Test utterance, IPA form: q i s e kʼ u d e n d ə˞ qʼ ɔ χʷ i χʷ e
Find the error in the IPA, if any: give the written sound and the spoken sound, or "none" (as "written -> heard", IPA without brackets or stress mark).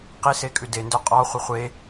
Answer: u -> ʉ